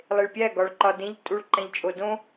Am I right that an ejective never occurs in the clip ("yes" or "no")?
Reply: no